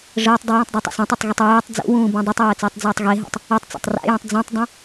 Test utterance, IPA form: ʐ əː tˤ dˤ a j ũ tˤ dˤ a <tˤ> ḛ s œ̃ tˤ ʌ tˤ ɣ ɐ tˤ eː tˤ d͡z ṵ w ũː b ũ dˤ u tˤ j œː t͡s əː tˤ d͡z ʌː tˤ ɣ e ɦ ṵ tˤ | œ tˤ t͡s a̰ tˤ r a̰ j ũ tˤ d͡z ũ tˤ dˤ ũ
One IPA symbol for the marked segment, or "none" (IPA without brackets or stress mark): tˤ